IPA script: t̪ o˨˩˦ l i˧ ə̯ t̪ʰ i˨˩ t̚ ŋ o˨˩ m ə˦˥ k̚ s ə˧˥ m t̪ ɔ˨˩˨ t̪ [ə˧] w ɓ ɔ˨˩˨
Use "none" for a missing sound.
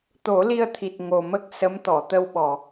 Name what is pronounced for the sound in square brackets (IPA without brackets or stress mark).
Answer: ə˧